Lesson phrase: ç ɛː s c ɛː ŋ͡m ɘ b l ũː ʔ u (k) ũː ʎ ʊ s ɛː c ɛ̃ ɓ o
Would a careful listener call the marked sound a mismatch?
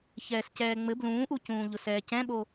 yes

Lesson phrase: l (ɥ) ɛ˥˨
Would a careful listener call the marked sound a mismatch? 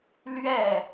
no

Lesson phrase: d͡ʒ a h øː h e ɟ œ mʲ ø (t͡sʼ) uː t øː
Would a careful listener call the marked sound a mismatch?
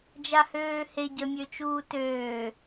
yes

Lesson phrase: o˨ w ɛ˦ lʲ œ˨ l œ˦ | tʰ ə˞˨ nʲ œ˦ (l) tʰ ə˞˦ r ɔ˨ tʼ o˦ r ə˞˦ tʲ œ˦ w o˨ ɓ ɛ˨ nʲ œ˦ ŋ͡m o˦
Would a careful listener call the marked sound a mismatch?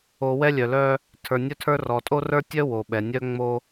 yes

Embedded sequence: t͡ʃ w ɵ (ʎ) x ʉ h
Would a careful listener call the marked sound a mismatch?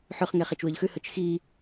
no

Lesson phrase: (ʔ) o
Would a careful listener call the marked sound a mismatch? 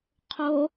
yes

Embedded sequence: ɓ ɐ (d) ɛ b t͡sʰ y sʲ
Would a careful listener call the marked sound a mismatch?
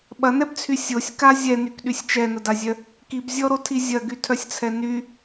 yes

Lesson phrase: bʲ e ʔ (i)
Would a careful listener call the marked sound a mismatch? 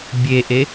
yes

